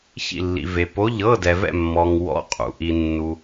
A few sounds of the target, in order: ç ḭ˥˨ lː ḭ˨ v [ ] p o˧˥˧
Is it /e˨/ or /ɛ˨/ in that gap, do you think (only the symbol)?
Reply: e˨